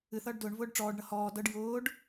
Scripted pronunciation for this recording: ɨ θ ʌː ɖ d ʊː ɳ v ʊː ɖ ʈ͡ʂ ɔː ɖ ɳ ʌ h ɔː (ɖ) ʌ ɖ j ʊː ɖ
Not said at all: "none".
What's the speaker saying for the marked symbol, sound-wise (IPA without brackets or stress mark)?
d